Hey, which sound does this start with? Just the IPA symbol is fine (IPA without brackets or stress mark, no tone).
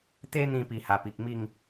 t̪